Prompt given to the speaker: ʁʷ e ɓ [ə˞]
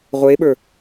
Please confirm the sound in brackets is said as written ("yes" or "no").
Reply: yes